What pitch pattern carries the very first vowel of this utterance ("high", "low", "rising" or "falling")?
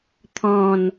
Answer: falling